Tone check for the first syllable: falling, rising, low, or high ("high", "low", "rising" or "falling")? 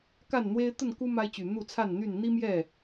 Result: falling